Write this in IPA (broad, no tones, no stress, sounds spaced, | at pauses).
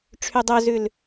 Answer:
ʈ͡ʂʰ y dˤ œ z ʉ l